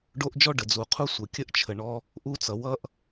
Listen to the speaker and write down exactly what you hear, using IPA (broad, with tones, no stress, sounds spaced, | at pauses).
ɖ o˧ ʔ d͡ʒ ɔ˧ ɖ ə˨ d͡z u˨ qʰ u˦ sʷ ə˨ kʲ ə˦ ʔ t͡ʃʰ ə˨ ɳ ɔ˧ | ʔ u˧ t͡s ʌ˨ w ʌ˦ ʔ